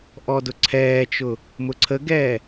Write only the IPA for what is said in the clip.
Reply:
ʔɔdʊǀʰɛːt͡ʃʊ | mʊǀʰəɡɛː

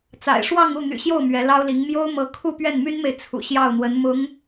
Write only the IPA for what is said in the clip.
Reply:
t͡sa̰˨˩ɪ̯ʂwɑ˥˧ŋu˥˩ n̪y̰˨˩ɕjo˥˩ʊ̯ mɥɛ˧˥ lɑ˥ʊ̯li˧˥ŋ mjo˥ʊ̯ mɤ˧˥ kʰu˥˧pɥɛ˥˩nmy˥nme˨ɪ̯ t͡sʰṵ˨˩ɕjɑ˥˩ʊ̯n̪wə˧˥n mʊ˧˥ŋ

